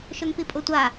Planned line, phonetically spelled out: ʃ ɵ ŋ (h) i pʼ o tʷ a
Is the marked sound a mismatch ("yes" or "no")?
yes